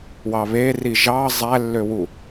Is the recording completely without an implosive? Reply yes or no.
yes